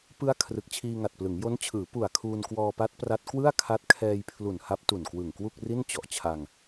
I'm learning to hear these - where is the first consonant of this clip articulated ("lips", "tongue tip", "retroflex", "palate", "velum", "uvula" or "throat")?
lips